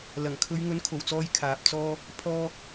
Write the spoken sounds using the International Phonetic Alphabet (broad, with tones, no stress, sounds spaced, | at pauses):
l ɐ˨˩ ŋ kʰ ɵ˨˧ ɥ ŋ ɵ˨˥ n kʰ o˨˩ w t͡s ɔː˧ j kʰ aː˨ p̚ t͡s ɔː˥ | pʰ ɔː˧